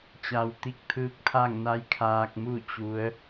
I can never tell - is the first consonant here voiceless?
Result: yes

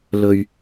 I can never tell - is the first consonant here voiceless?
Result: no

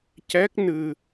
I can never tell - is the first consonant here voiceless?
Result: yes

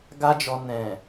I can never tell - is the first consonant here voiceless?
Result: no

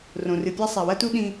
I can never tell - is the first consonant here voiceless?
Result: no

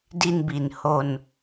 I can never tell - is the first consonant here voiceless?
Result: no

